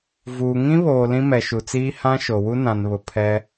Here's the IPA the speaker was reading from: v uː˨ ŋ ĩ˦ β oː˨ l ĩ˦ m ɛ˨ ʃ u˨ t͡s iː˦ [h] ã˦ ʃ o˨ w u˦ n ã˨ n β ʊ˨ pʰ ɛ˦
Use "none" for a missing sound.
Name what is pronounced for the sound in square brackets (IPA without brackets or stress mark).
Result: h